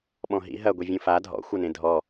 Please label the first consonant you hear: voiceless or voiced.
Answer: voiced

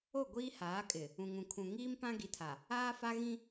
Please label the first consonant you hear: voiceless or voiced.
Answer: voiced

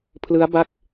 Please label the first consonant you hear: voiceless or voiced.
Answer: voiceless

